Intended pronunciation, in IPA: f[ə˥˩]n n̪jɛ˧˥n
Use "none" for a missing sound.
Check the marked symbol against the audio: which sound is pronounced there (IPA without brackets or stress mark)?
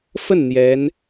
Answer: ə˥˩